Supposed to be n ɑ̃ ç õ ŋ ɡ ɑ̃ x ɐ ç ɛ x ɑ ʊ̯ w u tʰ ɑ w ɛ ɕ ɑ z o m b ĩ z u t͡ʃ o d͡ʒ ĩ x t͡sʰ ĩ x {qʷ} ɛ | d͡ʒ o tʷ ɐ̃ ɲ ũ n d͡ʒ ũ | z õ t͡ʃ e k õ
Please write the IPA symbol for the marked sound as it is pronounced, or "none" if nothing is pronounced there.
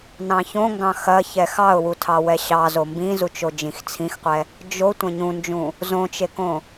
qʷ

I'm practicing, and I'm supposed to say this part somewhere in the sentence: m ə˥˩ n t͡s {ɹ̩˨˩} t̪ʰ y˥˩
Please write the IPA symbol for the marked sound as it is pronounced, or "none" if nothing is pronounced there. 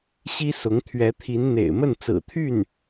ɹ̩˨˩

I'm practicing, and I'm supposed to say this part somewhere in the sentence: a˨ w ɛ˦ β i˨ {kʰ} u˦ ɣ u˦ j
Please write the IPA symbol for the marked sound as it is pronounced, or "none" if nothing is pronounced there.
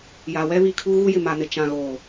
kʰ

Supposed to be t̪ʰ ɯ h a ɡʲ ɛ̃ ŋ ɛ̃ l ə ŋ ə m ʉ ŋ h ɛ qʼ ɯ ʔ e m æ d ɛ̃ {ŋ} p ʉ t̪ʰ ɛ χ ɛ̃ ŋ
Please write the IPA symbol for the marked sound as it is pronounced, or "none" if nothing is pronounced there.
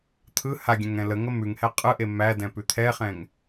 none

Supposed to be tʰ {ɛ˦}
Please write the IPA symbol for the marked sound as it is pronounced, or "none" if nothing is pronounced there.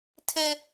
e˦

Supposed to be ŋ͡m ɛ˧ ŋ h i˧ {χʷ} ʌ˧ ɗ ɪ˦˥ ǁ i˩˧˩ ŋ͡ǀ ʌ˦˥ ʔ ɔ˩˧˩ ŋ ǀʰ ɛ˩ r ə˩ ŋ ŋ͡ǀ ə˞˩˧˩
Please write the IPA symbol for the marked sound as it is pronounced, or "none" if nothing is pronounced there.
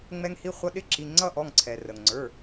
χʷ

